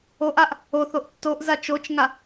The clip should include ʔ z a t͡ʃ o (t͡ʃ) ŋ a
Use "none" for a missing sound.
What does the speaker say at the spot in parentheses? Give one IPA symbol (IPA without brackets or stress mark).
t͡ʃ